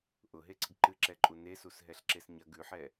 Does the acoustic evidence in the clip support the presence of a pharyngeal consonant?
yes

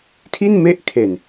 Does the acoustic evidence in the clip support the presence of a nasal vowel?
no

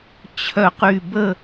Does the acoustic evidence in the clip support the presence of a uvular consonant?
yes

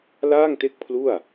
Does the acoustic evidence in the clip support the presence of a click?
no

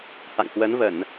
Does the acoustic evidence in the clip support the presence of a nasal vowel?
no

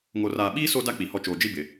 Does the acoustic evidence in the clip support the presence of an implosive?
yes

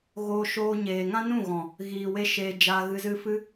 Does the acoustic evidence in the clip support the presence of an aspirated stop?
no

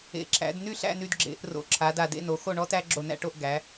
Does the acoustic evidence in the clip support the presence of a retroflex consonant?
yes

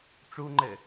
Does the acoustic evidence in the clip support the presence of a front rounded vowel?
no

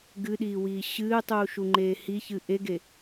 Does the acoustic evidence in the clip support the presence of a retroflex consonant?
no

